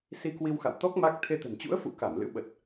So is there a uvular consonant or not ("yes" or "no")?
no